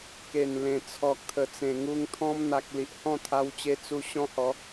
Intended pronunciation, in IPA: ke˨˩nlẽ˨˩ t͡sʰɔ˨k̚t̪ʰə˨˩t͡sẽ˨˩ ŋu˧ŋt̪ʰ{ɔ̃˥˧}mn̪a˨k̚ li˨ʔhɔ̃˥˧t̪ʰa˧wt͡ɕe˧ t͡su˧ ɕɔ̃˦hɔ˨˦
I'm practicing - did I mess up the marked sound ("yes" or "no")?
yes